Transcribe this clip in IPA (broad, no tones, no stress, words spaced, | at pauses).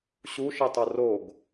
ɕuʃitˤo roɡ